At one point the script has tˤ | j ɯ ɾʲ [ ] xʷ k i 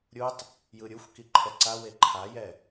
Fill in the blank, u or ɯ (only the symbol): u